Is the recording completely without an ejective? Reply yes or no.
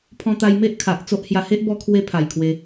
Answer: yes